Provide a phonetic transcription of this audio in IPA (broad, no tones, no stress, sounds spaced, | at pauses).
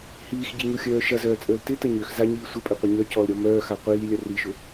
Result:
h iː x ɟ i ɲ u xʲ œː ʃ ɐ z œː t͡sʼ əː l t ɪ t ə ɲ ø x z a ɲ iː sʷ ɐ pʼ ø qʷ ɐ ɲ œ c ɔ l ɾʲ ɔ m œː x a qʷ iː lʲ ɐ r i ʃ ʊ